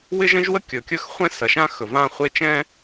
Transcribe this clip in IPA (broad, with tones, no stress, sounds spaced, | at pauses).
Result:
w ɪ˦ ʒ ə̃˦ ʒ w ə˦ kʲ ɵ˨ kʲ ɵ˦ x χʷ ɛ̃˦ s ɐ˨ ʃ ã˦ x ɵ˨ v ã˦ χʷ e˦ t͡ʃ ɛ̃˦